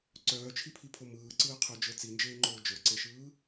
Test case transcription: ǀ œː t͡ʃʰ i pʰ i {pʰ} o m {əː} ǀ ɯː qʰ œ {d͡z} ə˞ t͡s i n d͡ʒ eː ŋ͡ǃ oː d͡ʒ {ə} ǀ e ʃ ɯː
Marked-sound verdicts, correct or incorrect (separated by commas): correct, incorrect, incorrect, incorrect